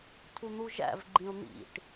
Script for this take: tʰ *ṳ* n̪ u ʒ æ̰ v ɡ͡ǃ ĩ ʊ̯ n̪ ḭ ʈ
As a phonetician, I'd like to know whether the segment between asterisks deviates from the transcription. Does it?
yes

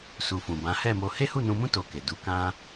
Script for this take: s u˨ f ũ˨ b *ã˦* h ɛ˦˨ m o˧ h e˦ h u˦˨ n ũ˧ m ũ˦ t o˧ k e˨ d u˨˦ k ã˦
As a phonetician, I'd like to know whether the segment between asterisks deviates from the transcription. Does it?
yes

